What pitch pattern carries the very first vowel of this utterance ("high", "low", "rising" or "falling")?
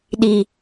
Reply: low